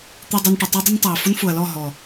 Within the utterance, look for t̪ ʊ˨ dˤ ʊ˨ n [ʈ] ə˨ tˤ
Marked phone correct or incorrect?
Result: correct